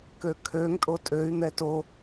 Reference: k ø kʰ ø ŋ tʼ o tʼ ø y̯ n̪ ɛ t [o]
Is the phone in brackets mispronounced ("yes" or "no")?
no